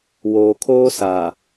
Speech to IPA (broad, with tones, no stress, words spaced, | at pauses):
woː˨kʰoː˦saː˨